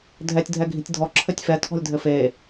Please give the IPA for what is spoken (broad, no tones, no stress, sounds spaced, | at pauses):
dʱ ɛ tʲ dʱ ɛ ɡʱ i̤ tʲ dʱ ɔ ǁʰ ɘ tʲ f ɛ tʰ ɔ̤ lʲ dʱ ɘ f e